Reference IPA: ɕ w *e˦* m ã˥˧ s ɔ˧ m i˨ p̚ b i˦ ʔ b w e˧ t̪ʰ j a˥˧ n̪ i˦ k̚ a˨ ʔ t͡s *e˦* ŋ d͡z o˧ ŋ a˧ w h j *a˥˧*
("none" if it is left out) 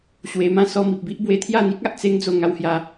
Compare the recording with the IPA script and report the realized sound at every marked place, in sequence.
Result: e˧, e˦, a˧

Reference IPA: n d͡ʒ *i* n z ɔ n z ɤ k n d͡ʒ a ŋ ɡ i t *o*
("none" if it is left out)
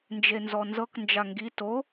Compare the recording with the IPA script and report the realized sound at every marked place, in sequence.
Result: e, o

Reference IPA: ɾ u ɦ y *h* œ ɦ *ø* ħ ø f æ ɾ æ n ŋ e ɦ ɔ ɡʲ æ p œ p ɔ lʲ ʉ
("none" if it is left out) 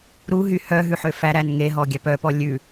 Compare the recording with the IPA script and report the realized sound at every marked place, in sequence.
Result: h, ʉ

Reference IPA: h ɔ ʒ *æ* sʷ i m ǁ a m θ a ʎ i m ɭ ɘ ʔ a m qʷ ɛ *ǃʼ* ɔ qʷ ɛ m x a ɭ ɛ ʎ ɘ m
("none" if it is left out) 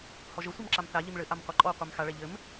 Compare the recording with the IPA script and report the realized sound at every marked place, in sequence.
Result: ə, ǃʼ

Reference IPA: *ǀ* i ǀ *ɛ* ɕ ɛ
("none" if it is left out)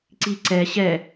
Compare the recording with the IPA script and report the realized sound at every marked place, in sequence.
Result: ǀ, ɛ

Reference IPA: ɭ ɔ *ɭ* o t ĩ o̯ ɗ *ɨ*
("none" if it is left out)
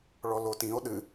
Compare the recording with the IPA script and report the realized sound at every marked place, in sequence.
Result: l, ɨ

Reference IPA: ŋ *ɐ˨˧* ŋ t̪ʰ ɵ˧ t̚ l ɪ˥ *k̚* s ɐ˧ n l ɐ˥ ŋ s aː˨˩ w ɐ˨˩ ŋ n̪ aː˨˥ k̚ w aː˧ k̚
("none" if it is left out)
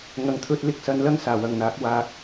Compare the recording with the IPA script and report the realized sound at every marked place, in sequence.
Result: ɐ˨, k̚

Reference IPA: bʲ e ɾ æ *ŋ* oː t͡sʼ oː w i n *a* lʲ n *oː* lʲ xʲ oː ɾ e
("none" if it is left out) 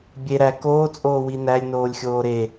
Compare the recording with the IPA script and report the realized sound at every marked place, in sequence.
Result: k, æ, oː

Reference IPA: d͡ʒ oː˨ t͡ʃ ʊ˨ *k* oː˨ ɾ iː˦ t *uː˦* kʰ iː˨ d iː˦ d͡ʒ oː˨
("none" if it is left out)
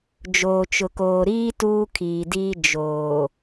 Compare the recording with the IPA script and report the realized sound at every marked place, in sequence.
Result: k, uː˦

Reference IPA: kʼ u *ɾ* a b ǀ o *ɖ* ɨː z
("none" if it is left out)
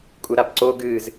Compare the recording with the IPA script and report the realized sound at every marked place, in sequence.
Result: ɾ, ɡ

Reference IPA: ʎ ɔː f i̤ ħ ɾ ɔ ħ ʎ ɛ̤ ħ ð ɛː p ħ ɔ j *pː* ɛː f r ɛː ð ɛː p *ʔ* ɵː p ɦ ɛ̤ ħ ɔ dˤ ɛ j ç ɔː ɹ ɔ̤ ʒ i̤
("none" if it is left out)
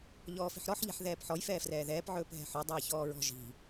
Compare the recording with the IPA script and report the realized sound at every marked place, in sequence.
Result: f, ʕ

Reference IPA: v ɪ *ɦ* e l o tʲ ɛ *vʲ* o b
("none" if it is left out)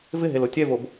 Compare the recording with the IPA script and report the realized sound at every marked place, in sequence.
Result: ɦ, v

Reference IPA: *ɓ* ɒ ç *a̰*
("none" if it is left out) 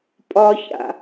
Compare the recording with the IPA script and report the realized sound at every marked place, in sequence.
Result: pʼ, a̰

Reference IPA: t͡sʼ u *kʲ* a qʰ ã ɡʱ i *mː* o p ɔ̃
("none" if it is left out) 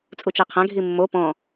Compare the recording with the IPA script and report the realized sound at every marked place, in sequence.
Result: t͡ʃ, mː

